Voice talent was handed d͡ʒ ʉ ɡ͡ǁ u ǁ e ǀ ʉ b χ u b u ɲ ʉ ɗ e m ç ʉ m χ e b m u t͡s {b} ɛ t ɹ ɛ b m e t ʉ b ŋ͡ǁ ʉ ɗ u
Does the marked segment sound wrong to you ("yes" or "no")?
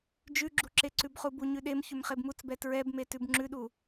no